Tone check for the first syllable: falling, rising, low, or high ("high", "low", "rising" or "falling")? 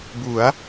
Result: rising